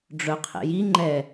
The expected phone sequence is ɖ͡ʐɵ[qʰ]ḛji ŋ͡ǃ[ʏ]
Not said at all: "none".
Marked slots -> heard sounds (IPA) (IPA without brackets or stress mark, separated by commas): qʰ, ɛ